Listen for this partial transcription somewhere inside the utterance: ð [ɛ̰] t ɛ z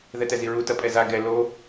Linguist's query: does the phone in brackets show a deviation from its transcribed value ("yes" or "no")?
yes